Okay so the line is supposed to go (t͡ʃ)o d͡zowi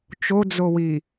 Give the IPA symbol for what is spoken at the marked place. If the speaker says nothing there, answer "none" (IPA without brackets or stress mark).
t͡ʃ